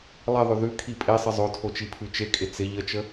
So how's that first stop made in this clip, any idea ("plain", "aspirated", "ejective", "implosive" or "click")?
aspirated